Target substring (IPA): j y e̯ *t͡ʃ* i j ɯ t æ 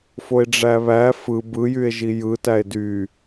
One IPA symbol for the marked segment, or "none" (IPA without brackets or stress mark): ʒ